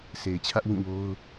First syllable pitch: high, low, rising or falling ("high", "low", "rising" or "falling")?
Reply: low